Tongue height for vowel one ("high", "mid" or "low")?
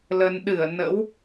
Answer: mid